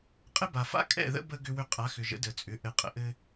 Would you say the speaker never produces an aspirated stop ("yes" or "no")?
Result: yes